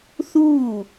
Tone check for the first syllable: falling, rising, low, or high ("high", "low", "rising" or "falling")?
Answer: falling